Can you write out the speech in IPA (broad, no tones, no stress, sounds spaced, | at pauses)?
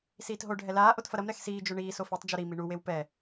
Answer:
s iː t ɦ o ɖʱ ɛ l aː ʔ o t f ɐ ɾ ɐ m ɾ ɛ x s iː d͡ʒ o ɳ iː s o f e tˤ d͡ʒ u ɾ i m i ɳ u w e w p ɛ